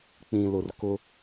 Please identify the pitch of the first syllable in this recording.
low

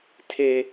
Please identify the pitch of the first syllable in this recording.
high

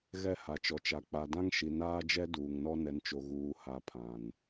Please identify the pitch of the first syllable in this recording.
falling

